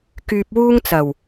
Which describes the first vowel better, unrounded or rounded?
rounded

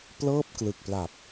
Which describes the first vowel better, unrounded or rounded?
unrounded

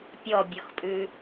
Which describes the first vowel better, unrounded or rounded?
rounded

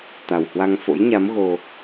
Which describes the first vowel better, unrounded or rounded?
unrounded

